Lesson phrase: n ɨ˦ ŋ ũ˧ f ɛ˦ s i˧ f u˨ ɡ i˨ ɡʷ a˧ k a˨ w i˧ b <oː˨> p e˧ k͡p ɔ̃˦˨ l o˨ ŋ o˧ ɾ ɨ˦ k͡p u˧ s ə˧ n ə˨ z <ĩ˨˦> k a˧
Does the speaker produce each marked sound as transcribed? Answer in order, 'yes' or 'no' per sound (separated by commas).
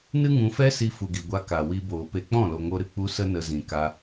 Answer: yes, no